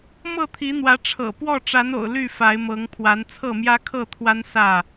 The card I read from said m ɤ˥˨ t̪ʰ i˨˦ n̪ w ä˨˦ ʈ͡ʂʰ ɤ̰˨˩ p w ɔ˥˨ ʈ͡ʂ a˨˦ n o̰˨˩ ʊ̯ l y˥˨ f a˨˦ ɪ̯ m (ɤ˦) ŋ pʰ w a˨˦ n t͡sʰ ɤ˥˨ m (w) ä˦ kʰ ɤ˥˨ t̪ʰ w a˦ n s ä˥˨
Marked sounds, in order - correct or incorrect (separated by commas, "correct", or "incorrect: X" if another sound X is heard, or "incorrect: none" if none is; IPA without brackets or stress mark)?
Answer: incorrect: ɤ˨˦, incorrect: j